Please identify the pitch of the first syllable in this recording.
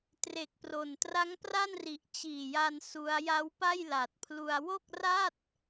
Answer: low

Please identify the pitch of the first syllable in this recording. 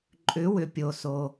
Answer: rising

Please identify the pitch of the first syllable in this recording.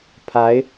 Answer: rising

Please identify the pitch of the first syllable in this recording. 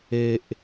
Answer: low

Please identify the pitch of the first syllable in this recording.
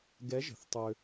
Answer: rising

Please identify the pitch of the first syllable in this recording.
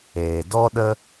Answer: low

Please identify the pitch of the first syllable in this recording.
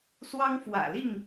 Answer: high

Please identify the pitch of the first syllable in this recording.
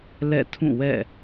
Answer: falling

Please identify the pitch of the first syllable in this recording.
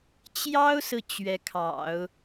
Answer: high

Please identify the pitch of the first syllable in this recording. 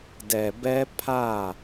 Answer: low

